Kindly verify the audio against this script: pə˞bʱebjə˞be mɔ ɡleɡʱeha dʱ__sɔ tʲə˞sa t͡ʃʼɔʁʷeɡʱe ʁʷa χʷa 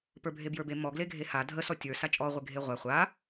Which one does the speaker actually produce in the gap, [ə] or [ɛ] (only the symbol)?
ə